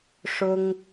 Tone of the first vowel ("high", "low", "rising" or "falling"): high